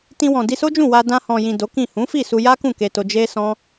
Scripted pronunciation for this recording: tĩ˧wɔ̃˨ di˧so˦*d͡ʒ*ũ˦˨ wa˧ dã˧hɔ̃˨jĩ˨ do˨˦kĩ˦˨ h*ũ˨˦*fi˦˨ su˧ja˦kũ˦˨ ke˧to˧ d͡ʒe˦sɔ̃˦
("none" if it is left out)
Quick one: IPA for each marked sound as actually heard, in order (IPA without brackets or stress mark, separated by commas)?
d͡ʒ, ũ˨˦